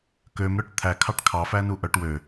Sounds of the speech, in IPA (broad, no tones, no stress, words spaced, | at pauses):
kømɾœʈ t̪ʰækʰɑʈ kʰɑfænu ʔœʈ wø